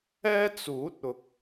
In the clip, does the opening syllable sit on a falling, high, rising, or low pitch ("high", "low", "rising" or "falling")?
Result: high